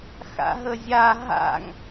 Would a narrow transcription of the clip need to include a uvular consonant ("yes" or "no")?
no